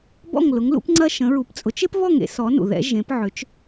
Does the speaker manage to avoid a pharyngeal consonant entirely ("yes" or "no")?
no